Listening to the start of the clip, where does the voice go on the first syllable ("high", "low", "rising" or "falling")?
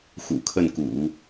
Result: low